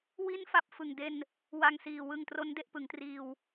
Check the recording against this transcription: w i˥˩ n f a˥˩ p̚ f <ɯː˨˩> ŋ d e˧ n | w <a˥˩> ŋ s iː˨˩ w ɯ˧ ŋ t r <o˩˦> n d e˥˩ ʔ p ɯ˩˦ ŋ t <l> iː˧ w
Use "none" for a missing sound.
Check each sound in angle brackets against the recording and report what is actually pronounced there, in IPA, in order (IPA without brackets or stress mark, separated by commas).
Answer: ɯ˨˩, a˧, o˦˥, r